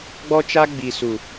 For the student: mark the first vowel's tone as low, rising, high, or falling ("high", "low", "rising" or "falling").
high